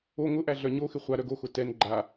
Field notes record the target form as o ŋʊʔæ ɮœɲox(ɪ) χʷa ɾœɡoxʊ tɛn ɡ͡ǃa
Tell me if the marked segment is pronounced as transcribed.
yes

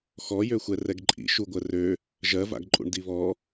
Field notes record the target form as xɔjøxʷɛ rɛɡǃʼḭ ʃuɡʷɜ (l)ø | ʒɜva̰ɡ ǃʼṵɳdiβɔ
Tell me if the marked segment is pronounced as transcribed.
no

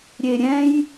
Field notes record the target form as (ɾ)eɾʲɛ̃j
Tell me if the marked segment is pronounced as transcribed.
no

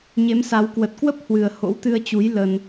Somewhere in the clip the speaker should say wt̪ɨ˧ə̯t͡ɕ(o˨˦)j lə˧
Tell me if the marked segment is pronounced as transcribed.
no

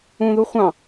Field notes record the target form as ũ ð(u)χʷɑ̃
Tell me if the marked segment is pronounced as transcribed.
yes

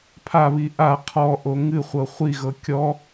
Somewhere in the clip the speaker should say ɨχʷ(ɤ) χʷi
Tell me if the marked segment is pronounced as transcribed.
yes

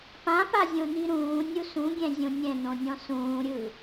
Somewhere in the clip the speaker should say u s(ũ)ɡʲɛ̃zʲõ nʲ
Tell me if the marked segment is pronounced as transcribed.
yes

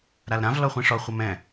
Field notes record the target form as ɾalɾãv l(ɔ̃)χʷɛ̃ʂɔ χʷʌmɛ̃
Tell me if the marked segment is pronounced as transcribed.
no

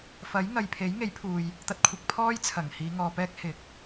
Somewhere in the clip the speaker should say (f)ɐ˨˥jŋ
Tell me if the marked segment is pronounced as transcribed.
yes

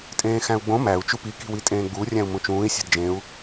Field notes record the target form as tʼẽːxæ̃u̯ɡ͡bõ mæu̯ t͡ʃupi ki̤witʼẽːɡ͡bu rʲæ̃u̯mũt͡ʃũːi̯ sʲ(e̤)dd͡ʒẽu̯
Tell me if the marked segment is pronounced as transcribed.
yes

